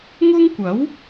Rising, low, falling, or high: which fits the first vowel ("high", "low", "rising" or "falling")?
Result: high